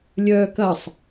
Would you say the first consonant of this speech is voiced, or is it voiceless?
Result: voiced